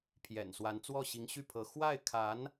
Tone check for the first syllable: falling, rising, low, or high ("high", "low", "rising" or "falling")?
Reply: low